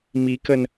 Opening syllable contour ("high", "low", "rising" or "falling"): rising